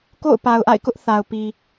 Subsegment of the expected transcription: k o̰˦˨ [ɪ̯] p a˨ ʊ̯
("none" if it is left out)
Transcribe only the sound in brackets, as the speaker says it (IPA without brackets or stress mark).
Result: ʊ̯